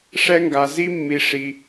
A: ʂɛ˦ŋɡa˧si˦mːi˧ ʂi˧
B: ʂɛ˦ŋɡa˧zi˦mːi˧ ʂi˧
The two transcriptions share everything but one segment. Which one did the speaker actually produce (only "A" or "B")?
B